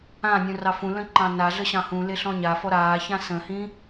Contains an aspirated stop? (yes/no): no